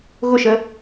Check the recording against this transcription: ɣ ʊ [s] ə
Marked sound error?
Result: yes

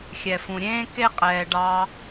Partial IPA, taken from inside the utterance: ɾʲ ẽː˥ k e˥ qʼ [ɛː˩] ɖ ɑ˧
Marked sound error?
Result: no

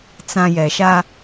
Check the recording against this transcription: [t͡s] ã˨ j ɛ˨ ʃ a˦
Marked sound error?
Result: no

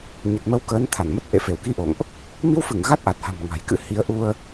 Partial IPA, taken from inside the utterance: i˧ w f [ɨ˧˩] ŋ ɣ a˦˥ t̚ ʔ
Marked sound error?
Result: no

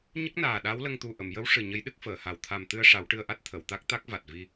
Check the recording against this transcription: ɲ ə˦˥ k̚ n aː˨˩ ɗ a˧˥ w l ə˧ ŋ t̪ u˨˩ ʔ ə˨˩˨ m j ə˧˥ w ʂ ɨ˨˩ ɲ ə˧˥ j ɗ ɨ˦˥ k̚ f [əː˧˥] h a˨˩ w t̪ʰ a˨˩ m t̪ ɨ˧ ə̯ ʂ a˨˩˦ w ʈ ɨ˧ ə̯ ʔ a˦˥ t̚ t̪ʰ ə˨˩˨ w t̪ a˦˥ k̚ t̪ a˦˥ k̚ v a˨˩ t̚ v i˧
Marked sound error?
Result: yes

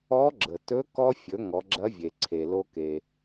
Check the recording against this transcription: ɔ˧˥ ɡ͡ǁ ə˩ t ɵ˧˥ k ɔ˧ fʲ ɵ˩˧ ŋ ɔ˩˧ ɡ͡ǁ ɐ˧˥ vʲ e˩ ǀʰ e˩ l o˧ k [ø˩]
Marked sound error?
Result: yes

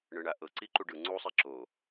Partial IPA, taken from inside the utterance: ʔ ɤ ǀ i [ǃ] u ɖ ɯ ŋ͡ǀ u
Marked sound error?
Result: no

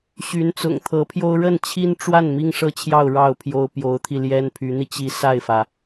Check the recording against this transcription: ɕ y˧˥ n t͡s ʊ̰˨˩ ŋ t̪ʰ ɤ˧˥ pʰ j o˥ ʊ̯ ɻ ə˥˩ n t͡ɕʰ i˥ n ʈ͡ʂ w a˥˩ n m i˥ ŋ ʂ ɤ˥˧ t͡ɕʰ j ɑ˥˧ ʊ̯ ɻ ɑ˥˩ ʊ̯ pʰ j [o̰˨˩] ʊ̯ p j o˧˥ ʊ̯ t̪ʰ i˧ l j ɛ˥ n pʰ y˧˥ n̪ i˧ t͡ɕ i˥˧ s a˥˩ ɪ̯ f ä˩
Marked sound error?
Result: yes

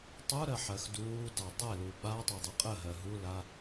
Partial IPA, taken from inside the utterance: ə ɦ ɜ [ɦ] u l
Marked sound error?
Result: no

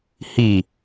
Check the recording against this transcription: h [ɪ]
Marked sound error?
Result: yes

